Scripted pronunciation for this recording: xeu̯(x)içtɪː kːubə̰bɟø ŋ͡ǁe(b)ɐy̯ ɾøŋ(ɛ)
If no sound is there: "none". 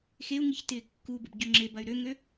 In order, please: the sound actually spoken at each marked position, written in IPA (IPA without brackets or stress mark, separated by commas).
ŋ, b, ø